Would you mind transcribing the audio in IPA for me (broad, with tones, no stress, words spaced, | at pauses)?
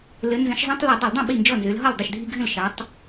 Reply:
lə˨˦ nzə̃˨˦ʃzˤĩ˦tˤ lɨ˧˩˧dˤə˧˩˧ldˤə̃˥˩ ɓi˥˩nd͡ʒɔ˥˩nzø˨˦l ɦɔ˥˩ldˤə˥˩ʃdʱi˦ɡʱə̃˥˩l ʃɑ˨˦tˤ